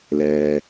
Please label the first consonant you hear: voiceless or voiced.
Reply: voiced